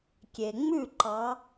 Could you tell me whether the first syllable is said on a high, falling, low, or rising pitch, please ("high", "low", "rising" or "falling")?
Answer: low